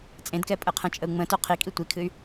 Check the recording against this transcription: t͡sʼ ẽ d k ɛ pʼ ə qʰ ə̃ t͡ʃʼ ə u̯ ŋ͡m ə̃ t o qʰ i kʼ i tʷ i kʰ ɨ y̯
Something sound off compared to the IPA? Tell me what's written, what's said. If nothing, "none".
none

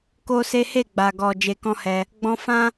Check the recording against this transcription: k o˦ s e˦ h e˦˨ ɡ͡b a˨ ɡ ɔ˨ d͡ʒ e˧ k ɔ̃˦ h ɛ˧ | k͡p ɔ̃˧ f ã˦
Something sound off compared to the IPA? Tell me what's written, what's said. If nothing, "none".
k͡p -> ɡ͡b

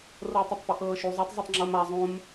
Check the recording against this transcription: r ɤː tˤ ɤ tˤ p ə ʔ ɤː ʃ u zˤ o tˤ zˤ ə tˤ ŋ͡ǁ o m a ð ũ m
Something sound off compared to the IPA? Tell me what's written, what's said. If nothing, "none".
ð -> zˤ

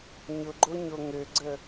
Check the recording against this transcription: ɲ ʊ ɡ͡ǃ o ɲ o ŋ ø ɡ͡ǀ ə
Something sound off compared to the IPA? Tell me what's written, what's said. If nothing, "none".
none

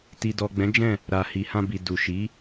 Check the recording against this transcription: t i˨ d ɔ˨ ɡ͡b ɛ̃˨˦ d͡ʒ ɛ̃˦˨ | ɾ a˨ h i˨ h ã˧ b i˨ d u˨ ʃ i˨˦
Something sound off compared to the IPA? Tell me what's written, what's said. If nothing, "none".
none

